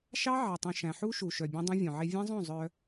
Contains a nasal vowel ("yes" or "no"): yes